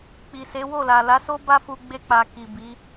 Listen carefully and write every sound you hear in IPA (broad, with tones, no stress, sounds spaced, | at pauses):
k͡p i˨ s e˨˦ w o˦˨ l a˨ l a˨˦ s o˦ b a˦ f u˧ ɡ͡b e˧ k͡p a˨ k i˨ b i˨˦